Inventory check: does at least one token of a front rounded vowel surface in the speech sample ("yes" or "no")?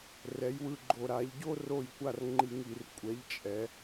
no